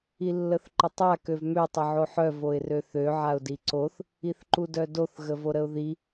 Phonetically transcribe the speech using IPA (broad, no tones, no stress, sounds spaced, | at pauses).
i lː ə θ ǃ ə tˤ a k ø v m ø tˤ ə ʕ o ħ œ v o ɪ̯ r ø θ ø ʕ a ʊ̯ d i ǀ o θ | i θ ǃ u d œ d o θ ɣ ə v o ɾ ə ʊ̯ ð i